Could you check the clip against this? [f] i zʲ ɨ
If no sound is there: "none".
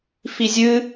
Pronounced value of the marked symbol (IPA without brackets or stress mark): f